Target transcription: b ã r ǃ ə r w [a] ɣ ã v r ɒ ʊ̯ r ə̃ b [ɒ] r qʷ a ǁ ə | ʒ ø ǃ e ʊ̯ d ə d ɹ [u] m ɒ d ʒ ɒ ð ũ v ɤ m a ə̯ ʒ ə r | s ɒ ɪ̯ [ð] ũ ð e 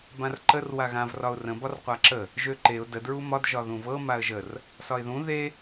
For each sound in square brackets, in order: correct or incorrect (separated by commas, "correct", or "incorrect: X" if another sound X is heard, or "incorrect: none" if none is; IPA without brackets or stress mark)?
correct, correct, correct, correct